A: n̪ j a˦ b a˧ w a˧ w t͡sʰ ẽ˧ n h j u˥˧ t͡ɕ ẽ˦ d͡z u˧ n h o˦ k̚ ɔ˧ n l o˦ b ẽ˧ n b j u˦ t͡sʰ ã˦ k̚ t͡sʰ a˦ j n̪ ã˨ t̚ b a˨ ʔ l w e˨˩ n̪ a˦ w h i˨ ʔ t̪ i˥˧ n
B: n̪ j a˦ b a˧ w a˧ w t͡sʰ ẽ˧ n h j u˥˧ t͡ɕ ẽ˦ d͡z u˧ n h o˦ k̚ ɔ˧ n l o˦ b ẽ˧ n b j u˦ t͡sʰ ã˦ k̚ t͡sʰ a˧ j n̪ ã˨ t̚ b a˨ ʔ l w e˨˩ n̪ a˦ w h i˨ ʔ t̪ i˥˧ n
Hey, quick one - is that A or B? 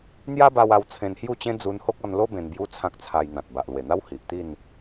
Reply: B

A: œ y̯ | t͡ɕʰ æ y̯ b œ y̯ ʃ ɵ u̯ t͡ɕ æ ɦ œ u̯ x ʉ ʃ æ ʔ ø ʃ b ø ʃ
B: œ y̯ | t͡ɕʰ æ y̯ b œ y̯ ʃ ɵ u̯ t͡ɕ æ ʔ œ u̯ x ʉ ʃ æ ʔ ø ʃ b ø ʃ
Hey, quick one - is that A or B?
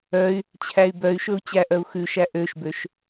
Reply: B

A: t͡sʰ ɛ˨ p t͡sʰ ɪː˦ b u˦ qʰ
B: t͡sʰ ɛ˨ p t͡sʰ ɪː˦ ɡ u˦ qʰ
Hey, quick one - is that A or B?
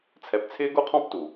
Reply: B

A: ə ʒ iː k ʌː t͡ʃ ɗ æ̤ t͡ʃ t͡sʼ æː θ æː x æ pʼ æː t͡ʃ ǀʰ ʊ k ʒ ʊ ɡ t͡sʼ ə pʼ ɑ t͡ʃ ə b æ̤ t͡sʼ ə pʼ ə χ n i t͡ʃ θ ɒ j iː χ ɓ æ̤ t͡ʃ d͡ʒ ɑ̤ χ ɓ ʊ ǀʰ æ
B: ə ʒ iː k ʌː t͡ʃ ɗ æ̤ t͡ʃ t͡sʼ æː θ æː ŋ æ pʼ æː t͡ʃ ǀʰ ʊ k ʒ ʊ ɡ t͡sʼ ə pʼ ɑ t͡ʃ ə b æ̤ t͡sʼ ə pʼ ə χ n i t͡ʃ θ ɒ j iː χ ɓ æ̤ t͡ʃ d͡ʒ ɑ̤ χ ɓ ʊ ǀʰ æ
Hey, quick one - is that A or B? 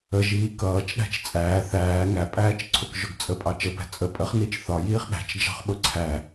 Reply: B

